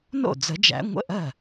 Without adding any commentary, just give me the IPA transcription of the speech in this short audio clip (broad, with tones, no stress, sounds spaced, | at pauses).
n o̰˥˩ d͡z ə˨˩˦ d͡ʒ æ̰˨˦ ŋʷ ə̰˧˥˧ ʔ ɜ˥˩